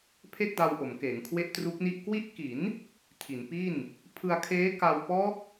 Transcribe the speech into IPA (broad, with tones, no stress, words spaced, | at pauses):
pʰe˥˩k̚da˧wʔo˩˦m keː˩˦ŋkʰwe˥˩ʔtru˦˥k̚ni˥˩ʔ kwi˦˥ʔki˩˦n | tʰi˩˦npi˥˩n | pʰɯ˧a̯kʰeː˦˥ ka˧wpɔː˦˥k̚